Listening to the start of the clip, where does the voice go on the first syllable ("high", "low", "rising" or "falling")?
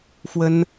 high